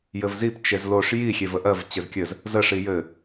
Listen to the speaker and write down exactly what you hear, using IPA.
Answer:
jɘvzip t͡ʃezloʂ ji xʲevəʔɜv t͡ɕɘzkʲɘz | zə ʂijɘ

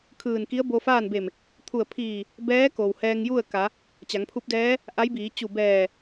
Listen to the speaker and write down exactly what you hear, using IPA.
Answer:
kʰɯː˧˩n ki˧˥ə̯bo˧faː˥˨nbe˧˩m | t̪ʰu˧˩ə̯pʰiː˧˩ | bɛː˧˥ ko˩whɛː˧ŋju˥˨ə̯ ka˩˧ | t͡ɕa˩˧ŋpʰu˧˥p̚dɛː˧˥ | ʔa˧˥jbiː˩˧ t͡ɕu˧˩bɛː˧˩

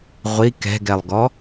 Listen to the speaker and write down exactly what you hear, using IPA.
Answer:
ʁʷi kɛ̤ɡɛlˠɡɔ

